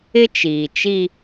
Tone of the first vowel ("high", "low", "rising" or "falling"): high